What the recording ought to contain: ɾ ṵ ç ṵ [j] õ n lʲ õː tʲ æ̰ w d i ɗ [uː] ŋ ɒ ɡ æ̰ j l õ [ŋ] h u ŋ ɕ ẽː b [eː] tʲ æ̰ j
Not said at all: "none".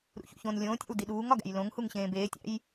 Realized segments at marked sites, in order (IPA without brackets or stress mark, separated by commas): ç, uː, ŋ, eː